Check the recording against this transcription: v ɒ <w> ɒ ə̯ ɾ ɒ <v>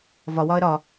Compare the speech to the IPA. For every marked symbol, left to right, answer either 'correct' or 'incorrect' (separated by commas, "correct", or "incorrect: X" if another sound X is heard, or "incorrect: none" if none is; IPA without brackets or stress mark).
correct, incorrect: none